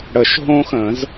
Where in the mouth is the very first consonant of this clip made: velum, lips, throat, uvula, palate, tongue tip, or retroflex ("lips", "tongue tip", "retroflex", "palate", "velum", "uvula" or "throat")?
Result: retroflex